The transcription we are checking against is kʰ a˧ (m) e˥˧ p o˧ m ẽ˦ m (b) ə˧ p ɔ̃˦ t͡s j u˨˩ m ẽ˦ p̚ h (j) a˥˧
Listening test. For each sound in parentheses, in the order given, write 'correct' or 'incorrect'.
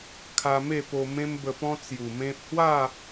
correct, correct, incorrect: w

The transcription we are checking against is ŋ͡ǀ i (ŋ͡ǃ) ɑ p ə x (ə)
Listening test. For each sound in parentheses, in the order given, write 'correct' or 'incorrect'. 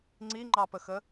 correct, correct

